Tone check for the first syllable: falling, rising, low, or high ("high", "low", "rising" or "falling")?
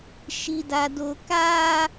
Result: high